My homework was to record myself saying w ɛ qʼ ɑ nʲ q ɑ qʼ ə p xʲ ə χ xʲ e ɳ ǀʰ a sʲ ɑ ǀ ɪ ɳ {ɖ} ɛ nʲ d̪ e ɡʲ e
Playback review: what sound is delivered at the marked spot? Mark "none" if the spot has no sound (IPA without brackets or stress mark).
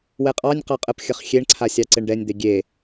ɖ